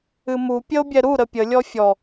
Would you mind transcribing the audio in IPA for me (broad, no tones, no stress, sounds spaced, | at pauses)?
ɨ m u pʲ ə o̯ bʲ ɛ ɾ u ɾ ə pʲ ə lʲ ɔ fʲ ɔ